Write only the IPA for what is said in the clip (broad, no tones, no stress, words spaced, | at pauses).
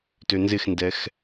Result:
tønzɪxndɛx